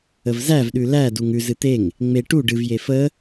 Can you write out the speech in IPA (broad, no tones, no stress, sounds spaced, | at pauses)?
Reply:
ə v z æ v ɗ ʉ l æ d u ŋ ʉ z ɨ t̪ e ŋ | ŋ͡m e ʈ u ɖ ɨ v j e f ə